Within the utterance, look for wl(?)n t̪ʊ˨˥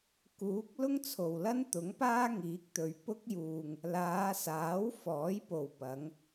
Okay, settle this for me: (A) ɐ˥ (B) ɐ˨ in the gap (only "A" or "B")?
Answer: A